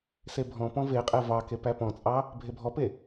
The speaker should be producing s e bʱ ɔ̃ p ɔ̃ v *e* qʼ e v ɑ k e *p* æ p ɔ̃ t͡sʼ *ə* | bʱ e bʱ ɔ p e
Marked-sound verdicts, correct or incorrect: correct, correct, incorrect: ɑ

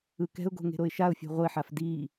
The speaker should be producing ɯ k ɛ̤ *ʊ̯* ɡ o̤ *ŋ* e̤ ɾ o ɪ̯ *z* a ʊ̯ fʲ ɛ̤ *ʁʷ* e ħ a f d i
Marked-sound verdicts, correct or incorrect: correct, correct, incorrect: ʃ, correct

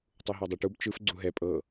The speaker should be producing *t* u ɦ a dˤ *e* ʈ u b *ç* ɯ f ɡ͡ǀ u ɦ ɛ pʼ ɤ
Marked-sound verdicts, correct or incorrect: incorrect: tˤ, correct, incorrect: t͡ʃ

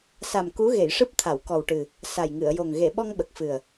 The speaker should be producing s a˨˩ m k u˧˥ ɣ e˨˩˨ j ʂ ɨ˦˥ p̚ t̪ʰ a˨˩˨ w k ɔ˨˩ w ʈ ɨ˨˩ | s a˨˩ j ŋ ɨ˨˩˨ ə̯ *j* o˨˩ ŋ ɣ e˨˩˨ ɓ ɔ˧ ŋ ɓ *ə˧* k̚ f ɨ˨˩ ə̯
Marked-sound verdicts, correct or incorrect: correct, incorrect: ə˨˩

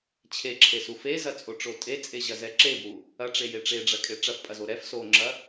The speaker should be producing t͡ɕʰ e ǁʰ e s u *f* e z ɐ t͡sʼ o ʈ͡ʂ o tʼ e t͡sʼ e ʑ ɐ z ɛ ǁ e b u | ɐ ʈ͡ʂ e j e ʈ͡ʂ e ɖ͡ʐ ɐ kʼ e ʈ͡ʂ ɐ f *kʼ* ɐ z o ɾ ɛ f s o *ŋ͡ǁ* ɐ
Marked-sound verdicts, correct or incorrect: correct, incorrect: pʼ, correct

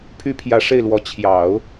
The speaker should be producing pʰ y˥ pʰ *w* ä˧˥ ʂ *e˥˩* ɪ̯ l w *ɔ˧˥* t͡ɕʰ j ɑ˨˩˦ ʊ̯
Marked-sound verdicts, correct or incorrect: incorrect: j, correct, correct

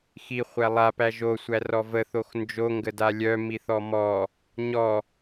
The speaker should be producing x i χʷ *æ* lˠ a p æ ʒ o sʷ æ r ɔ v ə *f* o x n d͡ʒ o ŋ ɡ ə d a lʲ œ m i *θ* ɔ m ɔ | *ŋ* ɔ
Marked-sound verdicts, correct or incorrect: correct, incorrect: θ, correct, incorrect: ɲ

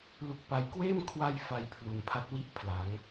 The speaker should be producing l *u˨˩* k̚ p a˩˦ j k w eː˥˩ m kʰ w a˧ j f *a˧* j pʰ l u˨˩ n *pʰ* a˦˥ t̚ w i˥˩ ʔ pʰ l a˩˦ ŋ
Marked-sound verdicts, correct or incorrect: correct, incorrect: a˨˩, correct

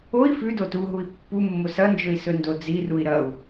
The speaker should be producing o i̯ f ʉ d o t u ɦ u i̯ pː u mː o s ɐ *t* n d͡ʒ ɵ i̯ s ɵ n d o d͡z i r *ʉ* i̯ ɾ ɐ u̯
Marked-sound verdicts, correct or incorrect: incorrect: none, incorrect: u

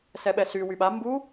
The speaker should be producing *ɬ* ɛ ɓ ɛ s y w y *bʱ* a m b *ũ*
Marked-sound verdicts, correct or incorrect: incorrect: s, incorrect: ɓ, incorrect: u

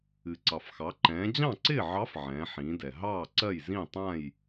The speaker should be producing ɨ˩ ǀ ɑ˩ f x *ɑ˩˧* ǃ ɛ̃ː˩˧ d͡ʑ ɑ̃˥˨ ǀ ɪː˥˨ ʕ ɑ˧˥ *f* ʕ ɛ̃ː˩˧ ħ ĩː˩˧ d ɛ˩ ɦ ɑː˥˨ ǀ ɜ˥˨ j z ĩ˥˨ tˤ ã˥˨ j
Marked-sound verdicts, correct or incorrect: correct, correct

